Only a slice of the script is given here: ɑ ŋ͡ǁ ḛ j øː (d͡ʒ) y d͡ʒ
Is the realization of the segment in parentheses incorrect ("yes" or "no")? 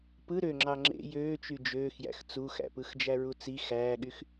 yes